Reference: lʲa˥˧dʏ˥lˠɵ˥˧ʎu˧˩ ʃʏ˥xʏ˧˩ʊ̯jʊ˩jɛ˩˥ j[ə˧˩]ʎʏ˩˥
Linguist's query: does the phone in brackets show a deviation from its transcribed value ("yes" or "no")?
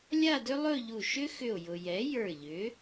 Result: yes